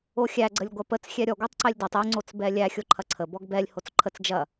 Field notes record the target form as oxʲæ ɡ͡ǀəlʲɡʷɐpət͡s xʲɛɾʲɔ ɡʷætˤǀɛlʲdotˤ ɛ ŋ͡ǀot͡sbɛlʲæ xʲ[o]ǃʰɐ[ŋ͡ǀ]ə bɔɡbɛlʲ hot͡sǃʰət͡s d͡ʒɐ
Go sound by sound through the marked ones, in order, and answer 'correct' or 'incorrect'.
correct, incorrect

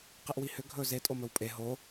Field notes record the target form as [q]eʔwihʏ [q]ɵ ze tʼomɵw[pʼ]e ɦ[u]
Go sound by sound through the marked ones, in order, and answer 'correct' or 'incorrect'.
correct, incorrect, correct, incorrect

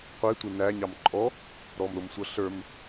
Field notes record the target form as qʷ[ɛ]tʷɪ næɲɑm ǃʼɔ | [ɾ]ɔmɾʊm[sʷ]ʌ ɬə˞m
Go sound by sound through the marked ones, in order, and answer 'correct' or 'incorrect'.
incorrect, correct, correct

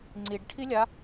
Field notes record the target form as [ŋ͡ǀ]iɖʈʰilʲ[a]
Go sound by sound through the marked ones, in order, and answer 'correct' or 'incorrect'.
correct, correct

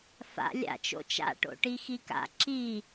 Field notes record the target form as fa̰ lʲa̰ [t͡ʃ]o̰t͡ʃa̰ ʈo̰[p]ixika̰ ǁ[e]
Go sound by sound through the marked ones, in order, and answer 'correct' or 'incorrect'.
correct, incorrect, incorrect

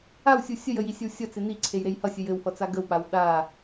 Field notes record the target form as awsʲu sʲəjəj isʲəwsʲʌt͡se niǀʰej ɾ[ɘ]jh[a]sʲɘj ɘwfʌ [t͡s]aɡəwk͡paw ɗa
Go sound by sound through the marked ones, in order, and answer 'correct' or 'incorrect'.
incorrect, incorrect, correct

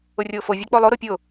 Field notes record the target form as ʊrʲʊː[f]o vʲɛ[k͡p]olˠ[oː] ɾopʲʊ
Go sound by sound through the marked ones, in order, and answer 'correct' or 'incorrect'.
correct, correct, incorrect

